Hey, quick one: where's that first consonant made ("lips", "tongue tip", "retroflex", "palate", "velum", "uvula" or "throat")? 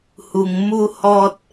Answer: throat